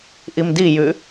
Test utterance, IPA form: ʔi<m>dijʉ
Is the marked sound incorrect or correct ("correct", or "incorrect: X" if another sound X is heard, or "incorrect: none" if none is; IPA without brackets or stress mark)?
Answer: correct